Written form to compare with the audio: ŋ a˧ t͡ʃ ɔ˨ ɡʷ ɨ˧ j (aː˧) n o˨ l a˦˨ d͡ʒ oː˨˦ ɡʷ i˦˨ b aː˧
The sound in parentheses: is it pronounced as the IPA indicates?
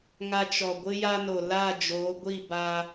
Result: no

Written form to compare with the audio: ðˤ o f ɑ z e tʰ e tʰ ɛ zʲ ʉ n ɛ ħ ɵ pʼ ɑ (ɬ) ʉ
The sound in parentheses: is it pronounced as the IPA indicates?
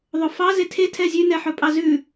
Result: no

